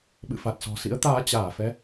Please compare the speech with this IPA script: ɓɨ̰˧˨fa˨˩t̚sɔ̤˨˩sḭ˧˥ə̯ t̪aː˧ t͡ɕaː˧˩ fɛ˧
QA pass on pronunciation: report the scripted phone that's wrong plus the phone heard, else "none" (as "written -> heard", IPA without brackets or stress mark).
none